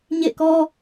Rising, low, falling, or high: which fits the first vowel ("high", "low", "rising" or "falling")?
falling